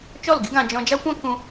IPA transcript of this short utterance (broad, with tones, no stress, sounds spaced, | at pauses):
t͡ʃ ɔ˦˨ l ɡ i˦ ɡ ã˧ d͡ʒ ɔ̃˧ d͡ʒ a˦ kʷ ã˦ k ũ˧